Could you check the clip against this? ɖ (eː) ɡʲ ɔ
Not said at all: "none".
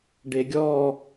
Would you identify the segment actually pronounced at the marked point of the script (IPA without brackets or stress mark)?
e